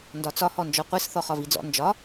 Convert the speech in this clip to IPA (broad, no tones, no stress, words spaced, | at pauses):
ndɒt͡sɒ hɔnd͡ʒɔqʷis θɔχɒvid͡zɔ̰ nd͡ʒɒ